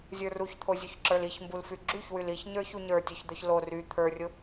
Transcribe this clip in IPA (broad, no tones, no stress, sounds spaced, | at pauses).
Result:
zʲ ə˞ r u ç t̪ʰ o zʲ u ç ǁ ə˞ l i ç m b u l f y ɡ͡ǁ y ç w y l i ç ɲ ə˞ ç u ɲ ə˞ tʲ o ç d̪ œ ç l o r y t̪ʰ ə˞ rʲ ʊ